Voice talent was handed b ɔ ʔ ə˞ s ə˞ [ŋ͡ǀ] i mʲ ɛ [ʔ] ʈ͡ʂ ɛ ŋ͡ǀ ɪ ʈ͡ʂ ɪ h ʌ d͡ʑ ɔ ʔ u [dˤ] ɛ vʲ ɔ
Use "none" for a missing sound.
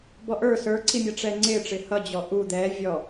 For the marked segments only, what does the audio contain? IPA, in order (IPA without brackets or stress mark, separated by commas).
ǀ, none, d̪